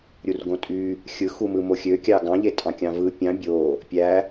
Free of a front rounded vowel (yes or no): no